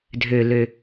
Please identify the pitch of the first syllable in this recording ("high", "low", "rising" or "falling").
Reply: low